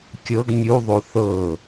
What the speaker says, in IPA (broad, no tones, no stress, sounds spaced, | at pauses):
kʲ ɤ ɡ mʲ u ðˤ o θ ɤ